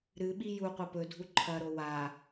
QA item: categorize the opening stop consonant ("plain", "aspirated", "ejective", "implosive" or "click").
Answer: implosive